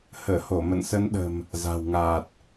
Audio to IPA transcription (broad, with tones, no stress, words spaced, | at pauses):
həː˧˩ho˧˩ mə̰˧˨nsə˨˦nɗə̤˨˩m | za̤˨˩wŋaː˨˩t̚